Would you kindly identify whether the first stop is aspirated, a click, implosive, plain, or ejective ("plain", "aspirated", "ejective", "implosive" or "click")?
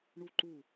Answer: click